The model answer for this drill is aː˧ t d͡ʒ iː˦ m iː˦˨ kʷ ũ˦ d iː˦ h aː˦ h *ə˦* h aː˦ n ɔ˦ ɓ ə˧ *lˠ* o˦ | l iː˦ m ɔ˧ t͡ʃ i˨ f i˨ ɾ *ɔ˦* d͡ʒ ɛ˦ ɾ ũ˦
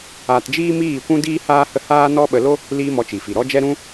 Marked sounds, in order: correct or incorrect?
correct, incorrect: l, correct

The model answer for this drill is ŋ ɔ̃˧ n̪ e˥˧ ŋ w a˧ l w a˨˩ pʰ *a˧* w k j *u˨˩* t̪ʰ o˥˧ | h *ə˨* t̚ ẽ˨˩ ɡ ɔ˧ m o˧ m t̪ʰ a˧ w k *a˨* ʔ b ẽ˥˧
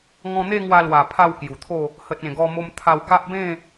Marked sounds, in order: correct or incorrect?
incorrect: a˥˧, correct, correct, incorrect: a˦

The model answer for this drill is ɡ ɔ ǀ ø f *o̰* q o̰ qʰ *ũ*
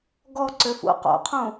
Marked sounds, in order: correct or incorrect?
incorrect: ṵ, correct

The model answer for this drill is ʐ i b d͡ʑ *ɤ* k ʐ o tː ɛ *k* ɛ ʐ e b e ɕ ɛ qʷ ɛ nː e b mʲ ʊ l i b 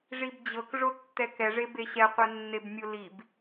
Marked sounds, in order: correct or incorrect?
correct, correct

